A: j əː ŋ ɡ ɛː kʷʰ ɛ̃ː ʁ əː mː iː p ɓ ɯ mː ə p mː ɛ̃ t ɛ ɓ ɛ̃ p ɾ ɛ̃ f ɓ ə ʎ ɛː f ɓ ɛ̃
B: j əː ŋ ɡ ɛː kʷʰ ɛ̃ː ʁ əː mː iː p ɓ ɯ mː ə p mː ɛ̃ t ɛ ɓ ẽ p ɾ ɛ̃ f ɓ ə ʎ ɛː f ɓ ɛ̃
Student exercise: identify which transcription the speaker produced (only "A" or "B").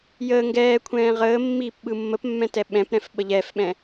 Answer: A